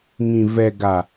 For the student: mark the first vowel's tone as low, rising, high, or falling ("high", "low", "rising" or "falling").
low